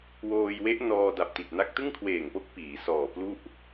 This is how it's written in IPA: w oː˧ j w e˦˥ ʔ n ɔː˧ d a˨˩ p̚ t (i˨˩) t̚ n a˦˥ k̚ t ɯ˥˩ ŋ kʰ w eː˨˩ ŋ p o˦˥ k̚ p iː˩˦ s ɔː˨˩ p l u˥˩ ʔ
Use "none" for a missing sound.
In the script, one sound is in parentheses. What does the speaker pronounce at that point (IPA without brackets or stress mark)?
i˨˩